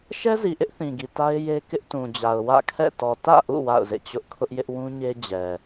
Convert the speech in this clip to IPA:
ʃɛ˦zi˨ʔɪ˦ʔ θĩ˨ɡi˨ta˦ɪ̯ je˦ kɪ˦ʔtũ˨d͡ʑa˨ʊ̯ wä̰˦˨kʰɛ̰˦˨tɔ˨ tä̰˦˨ʔṵ˦˨ wa̰˦˨ʊ̯zḛ˦˨t͡ɕʊ˦ʔ kʰʊ˦ʔjɪ˦ʔ wũ˦ɲe˦ d͡ʑɛ˨

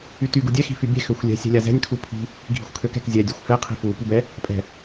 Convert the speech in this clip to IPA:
yty ɡudʲɛ xi̤fybʲɛ̤ xøxʷlʲɛ̤ sʲɛ̤lʲazɛ̤nʲ kʰupʰi̤ | ɡʱi̤xʷkʰøkɛ̤k zʲɛ dʲøxʷfɛ qʰi̤fu pybɛ | pʼɛ̤

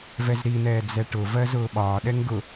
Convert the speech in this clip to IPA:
vɛzɾin̪ɛː d͡zɛʈʊvɜ zʊːɓɒːɗɛŋ ɡʊ

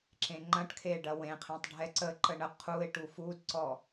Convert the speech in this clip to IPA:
ǁẽŋ͡ǃɐ̃ʈkʰe ɖɐwẽqʰẽtˤ ɖʱɛǀəǃə ɳə qʰuɪ̯ ʈufudǀɔ

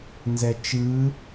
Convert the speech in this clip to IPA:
nzɛt͡ʃɯ

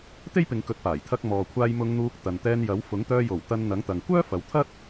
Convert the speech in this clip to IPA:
t̪e˥jpɪ˨˧ŋkɵ˨˥t̚ paː˨˩jt̪ʰɐ˧k̚ mɔː˨kʷʰaː˧j mʊ˧ŋn̪uː˧k̚ t̪ɐ˨nt̪ɛː˧njɐ˨˥w fʊ˨˥ŋt̪œː˧jo˨˩w t̪ɐ˧nn̪ɐ˨˥ŋt̪ɐ˨ŋ kʷœː˥ fɐ˨˥wt̪ʰɐ˥t̚

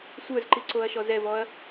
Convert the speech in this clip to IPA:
sʷə˞zǃiǀoɐ̯ʃɔz ɛvɔɐ̯

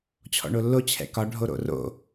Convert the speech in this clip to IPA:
t͡ɕʰɔ̰ɳolːo t͡ɕʰɛ̰kɒ ɖʱoɾo̰ro̰

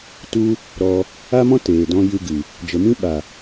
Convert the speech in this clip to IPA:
tu˦ | ɾɔ˧ | a˦mɔ̃˦ teː˨dɔ̃˦ jɨ˧ɡɨ˨ | d͡ʒə˨mĩ˦ ɓa˨

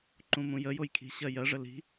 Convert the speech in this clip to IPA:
ǃũmũjə jojkʰi̤ ɕɜjɜʐə li̤

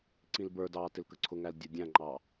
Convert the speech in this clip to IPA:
ǀĩlbə˞dɑː tɪlkəǀʰʊŋæl dʲudʲæ̃ŋ͡ǃɑː

